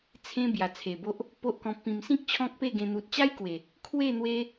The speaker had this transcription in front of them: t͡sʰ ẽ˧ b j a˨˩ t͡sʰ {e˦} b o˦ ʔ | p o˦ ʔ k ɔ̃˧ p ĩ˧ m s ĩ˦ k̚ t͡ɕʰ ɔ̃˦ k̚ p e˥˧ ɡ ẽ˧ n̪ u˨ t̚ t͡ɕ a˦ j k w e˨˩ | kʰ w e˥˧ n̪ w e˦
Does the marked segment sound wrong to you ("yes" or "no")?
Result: yes